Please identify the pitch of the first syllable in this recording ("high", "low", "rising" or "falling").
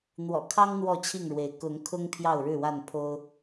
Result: low